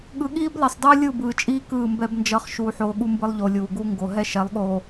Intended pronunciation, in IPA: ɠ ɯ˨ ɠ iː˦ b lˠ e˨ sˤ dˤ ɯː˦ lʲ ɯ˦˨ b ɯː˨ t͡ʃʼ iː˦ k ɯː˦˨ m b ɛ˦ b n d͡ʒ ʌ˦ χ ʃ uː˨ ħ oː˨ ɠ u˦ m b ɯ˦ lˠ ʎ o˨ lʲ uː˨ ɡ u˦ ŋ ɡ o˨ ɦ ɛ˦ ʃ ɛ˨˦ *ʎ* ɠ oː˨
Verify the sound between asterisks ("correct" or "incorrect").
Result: incorrect